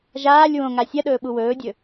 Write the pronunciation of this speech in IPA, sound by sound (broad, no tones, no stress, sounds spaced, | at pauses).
ʒ aː lʲ w õ ŋ a sʲ ɐ ɗ ɵː ɓ u w ɵː dʲ ɵ